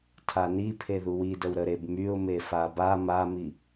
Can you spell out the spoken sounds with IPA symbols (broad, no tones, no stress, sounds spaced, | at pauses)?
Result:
tʰ a n i pʰ e ð u w i d ə w ɾ ə ɾ e b m y ʊ̯ m e f a b a m a m i